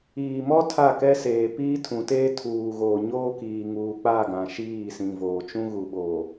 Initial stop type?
aspirated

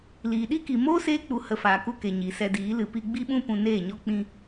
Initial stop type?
implosive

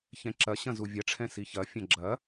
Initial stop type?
click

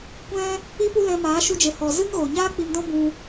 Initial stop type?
plain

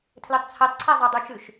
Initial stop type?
aspirated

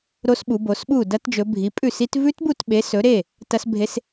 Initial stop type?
implosive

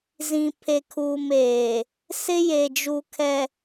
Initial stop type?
aspirated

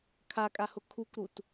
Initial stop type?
aspirated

